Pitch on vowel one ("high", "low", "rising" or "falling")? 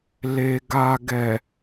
low